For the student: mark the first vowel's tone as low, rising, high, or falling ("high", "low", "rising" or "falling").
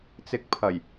rising